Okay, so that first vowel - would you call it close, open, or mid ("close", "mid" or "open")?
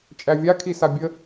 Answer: open